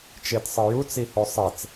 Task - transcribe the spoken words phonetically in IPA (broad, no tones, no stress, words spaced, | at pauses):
t͡ʃetsˤɨjut͡s ihosˤet͡s